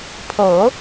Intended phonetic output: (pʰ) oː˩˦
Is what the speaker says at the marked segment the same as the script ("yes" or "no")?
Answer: yes